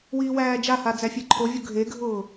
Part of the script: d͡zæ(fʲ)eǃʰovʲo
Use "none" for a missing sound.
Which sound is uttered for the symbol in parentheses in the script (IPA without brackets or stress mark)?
fʲ